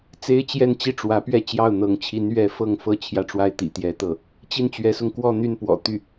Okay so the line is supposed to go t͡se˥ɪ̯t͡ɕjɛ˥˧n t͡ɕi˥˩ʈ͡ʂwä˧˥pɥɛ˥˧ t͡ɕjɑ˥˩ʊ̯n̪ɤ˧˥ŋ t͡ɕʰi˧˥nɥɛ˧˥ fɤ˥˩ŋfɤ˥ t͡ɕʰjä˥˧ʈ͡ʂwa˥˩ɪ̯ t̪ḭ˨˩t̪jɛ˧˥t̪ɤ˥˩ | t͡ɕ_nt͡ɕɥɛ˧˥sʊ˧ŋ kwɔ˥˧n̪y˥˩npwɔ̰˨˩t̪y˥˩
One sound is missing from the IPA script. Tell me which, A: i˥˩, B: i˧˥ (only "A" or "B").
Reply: A